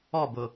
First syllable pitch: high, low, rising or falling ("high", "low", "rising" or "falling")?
falling